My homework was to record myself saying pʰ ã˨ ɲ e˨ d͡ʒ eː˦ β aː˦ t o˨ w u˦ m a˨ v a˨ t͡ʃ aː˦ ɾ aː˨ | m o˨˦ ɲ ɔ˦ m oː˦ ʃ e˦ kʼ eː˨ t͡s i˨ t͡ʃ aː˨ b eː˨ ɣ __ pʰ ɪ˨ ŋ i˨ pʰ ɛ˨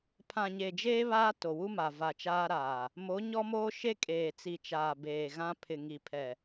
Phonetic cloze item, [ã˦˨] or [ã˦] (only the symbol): ã˦